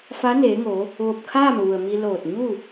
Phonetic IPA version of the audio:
f a˧˥ n eː˩˧ ŋ o˩˧ | ʋ o˧˩ p̚ kʰ aː˥˨ m ʋ u˩ ə̯ m i˧ l oː˧˩ t̚ ɲ u˥˨

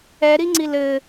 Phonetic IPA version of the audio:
ɛ ɾ i ŋ͡ǀ i l ɘ

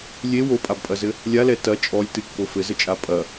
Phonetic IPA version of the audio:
lʲ e w o pʼ a b pʼ ɐ z ɘ | lʲ a l ɛ t ɐ t͡ʃʼ ɔ lʲ t ɨ kː o f ɘ z ɘ t͡ʃʼ a pʼ ɐ

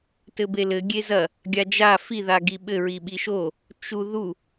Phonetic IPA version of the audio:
t ɘ b e l ɘ ɡʲ e z ɐ | ɡʲ a d͡ʒ a f i ð a ɡ i ɓ ɘ ɹ i ɓ i ʃ o | t͡ʃ u ð u

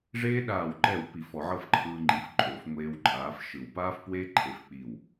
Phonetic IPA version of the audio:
ʐ eː˥ ɗ aː˧˩ w ǃ ɛ˧˩ w p i˧˩˧ f ɔ˧˩˧ ʕ ɤ˥˨ f ǃʰ ɯː˧ ŋ͡ǃ i˩˥ f ǃʼ o˧˩˧ f ŋʷ eː˧ w ǃʼ aː˩˥ f ʃ ɯ˧˩˧ w p aː˥ f p w eː˥ ǃʰ e˩˥ f k͡p i˧˩ w

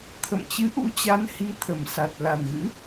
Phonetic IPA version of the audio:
t̪ʰ ə̰˧˨ m t͡ɕ ɨ˨˦ ʔ ṵ˧˥ t͡ɕ a˨˦ n h i˧ t̪ʰ ə˨˩ m s a˨˩ t̚ l a˨˩ n ɣ ɨ̰˧˥

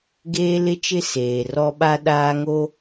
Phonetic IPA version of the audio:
ɡ eː˦ l ɪ˦ t͡ʃ ɪ˦ s eː˨ r ɔ˦ ɓ a˦ ɗ aː˦ ŋ o˦

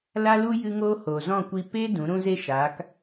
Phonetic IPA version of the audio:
l a˦ l u˦ j ɨ˧ ŋ oː˧ h oː˨ z ɔ̃˦˨ kʷ i˧ p e˦ d ũ˨˦ ɾ ũ˦ z e˦ ʃ aː˨˦ k

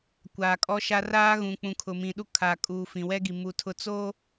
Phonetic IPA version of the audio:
kʷ aː˨ kʼ ɔ˦ ʃ a˦ r aː˦ ɣ ũ˨ k͡p ũ˨ kʰ ʊ˨ m ĩ˨ ɗ u˦ kʰ aː˨ kʼ uː˨ f ĩ˨ w ɛ˦ ɡ i˨ m u˨ tʰ ʊ˦˨ t͡s oː˦

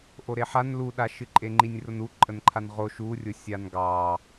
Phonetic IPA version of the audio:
ʔ o ɾ e ħ a n l u ɗ a ʃ ɨ ǃʼ e ŋ͡ǃ i nʲ r ʊ n u ǃʼ ə n ǃʰ a n ʁ o ʃ u rʲ ʊ sʲ a n ɡ ɑ

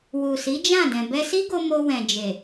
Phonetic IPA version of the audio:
w u˨ s i˨˦ d͡ʒ ã˦˨ d ɛ̃˨ b ɛ˧ s i˦ ɡ o˧ m o˧ w ɛ̃˨ d͡ʒ e˨

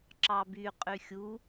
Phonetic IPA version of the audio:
ǁ ɑ b y qʼ y xʲ u

